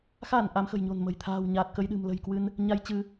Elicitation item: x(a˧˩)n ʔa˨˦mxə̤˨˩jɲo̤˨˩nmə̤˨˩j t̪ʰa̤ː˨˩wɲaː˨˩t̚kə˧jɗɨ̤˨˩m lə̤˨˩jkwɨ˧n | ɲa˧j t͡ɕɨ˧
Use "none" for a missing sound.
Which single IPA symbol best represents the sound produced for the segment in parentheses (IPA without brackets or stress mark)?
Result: a˧˩